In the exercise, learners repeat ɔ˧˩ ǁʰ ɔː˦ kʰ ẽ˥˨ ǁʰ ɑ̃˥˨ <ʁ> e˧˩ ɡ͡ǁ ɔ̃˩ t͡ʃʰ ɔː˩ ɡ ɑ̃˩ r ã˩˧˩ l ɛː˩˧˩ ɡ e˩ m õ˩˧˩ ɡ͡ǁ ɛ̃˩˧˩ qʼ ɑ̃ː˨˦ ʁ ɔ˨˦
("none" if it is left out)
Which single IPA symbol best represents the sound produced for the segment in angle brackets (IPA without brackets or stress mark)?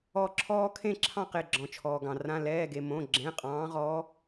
q